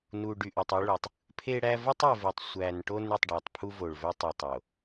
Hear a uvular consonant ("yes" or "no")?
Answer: no